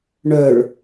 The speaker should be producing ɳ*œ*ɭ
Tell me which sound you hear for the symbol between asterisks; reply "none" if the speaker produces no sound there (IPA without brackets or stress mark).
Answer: œ